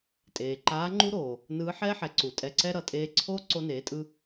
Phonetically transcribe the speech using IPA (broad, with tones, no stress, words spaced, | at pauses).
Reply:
tʼeː˩ǃaː˧˥ ŋ͡ǃu˥ɾoː˩ | nɯː˧˥ħɛː˥ħɛ˩˧ ǀu˩tʼɛ˧ǀɛ˥ ɾʌ˩˧tʼeː˧ǀʰoː˥ ǀo˧neː˩˧tʼɯ˧